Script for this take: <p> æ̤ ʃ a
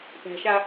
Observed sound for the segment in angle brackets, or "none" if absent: p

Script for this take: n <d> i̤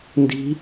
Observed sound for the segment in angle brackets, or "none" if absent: d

